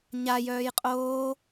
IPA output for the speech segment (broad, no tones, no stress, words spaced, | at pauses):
ɲa jœːjqʼoː